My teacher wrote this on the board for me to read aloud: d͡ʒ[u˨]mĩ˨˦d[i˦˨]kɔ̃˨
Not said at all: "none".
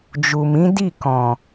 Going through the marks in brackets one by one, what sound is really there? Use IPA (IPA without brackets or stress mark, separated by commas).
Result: u˨, i˦˨